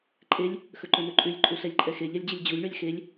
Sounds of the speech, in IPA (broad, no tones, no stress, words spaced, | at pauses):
ǃʼelʲ | xɵǃɵnɵǃʼʉlʲ ǃʼuɬɛlʲǃʼɛxe ʎɛlʲd͡ʑəlʲd͡ʑulʲ ɳɵlʲxelʲ